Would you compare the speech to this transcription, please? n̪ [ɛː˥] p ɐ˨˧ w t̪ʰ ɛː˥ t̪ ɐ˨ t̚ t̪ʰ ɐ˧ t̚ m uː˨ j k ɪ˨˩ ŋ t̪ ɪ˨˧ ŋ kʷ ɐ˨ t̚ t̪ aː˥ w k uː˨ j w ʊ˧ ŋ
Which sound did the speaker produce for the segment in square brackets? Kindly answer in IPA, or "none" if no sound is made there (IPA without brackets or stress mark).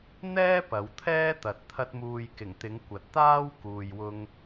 ɛː˥